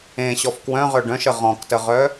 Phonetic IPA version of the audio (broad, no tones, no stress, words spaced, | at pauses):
ẽɕɔf kwœ̃ʁœ ɖœ̃ʃə ʁɔ̃ktəʁœ